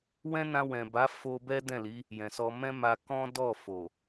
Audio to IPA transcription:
w ɛ̃˦ n ã˧ w ɛ̃˨ b a˨˦ f o˧ b ɛ˦ d ɛ̃˦˨ l i˨˦ | j ɛ̃˨ s ɔ˧ m ɛ̃˦ m a˧ k ɔ̃˦ d ɔ˦˨ f o˨

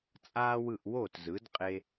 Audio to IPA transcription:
t͡sʼ aː˥ w ɯ˥˩ ʔ w o˥˩ t z ɯ˩˥ d qʼ e˧

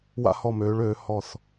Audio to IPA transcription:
w a̰˧ h ɔ˧˩ m øː˩˧ ɭ øː˩˧ h ɔ˧˩ θ

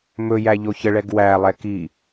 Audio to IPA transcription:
m ɵ j æ ʎ o ç ə ɭ ɛ ɡ w æ lˠ ɛ k i

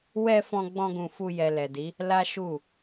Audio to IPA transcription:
w ɛ˦ f ɔ̃˦ ɡ͡b ɔ̃˦ ɡ ũ˧ f u˦ j ɛ˧ l ɛ˨ d i˨˦ | l a˦ ʃ u˦˨

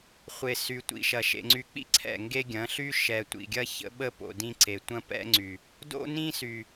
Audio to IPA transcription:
χʷ e˨ s y˨ tʷ ḭ˨ ʃ ɐ˨ ʃ ḛ˨ ŋ͡ǀ y˨ k͡p ḭ˦ ǀʰ ɛ̰˦˨ ŋ ɡ e˦ ɡʲ ɐ̃˨˦ ɬ y˦ ʃ ɛ˨ tʷ ḭ˨ ɡʲ ɐ˦ ç ə̰˦ ɓ ə˦ p o̰˨ d ĩ˦ ǀ e˨ tʷ ɐ̃˦ p ɛ̰˦ ŋ͡ǀ y˨ | d o̰˦ n ĩ˦ s y˨

